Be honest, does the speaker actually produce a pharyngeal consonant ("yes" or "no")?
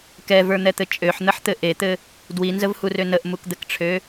yes